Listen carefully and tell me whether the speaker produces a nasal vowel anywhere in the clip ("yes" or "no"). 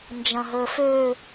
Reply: yes